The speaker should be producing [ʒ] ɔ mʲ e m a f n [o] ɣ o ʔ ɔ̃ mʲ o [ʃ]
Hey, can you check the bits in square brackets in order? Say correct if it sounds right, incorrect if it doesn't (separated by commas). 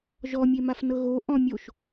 correct, incorrect, correct